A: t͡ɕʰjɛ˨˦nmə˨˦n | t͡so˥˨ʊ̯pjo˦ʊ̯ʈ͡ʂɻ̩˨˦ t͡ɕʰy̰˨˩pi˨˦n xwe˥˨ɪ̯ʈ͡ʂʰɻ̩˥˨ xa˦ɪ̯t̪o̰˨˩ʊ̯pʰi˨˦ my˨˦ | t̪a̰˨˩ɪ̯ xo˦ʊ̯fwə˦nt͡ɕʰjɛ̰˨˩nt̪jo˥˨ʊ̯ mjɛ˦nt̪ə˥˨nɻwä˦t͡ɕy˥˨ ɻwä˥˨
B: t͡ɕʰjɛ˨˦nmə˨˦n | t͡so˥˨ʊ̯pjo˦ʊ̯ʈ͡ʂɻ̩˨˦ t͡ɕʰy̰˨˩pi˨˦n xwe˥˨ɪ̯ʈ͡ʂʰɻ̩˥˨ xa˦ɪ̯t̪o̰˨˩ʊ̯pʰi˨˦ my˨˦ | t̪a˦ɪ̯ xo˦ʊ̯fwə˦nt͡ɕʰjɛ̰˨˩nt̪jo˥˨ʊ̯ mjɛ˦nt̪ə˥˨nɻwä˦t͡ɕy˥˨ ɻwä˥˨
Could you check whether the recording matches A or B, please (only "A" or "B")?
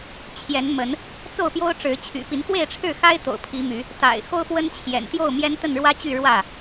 A